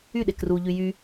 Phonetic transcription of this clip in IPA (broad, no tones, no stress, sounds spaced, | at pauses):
y ɗ e k r u ʎ y j y